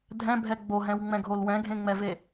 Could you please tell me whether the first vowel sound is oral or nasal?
nasal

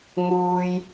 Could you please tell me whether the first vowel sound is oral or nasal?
oral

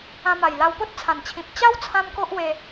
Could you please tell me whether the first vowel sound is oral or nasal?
nasal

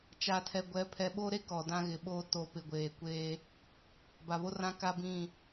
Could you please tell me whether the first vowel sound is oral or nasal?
oral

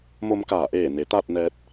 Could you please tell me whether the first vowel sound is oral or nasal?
oral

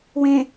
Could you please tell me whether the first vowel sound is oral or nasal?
nasal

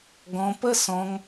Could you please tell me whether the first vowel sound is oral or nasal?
nasal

